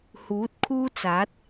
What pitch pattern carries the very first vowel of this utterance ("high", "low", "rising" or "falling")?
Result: rising